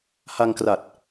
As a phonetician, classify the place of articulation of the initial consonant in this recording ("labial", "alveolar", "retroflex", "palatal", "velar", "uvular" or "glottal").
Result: glottal